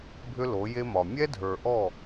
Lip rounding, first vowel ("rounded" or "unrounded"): rounded